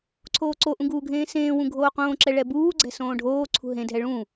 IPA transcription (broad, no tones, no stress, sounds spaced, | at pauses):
ǀʰ oː ǀ o ʔ ũ ɡ uː ɡʱ ẽː s ẽː w ũ ɡʱ oː q õː ǁ ɛ ɭ ɛ b uː ɡ͡ǀ ɛ̤ s õː ɖʱ oː ǀʰ ṳ ɦ ẽ dʱ ɛ ɭ ũ